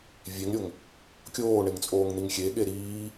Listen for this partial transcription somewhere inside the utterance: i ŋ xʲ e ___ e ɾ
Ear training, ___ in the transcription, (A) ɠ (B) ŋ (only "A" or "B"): A